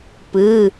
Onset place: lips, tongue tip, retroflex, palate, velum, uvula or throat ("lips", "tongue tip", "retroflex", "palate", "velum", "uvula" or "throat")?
lips